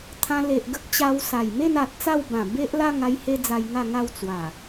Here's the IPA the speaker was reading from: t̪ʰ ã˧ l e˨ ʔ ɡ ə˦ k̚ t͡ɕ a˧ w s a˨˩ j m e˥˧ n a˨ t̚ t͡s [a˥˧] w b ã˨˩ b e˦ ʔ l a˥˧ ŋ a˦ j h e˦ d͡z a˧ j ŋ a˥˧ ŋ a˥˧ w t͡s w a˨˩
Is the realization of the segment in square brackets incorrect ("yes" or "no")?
no